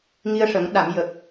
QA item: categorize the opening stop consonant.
implosive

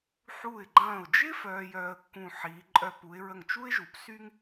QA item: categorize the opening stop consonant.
click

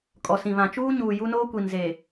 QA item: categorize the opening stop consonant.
ejective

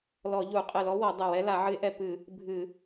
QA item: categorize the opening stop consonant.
ejective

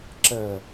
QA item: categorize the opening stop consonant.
click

